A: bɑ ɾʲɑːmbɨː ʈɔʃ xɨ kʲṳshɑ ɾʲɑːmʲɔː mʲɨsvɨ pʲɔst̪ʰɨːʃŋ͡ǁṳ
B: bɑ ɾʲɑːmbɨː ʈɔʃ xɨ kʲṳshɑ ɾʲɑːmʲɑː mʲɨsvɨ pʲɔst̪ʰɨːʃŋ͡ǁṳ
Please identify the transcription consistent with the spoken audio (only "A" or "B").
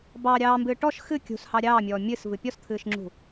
A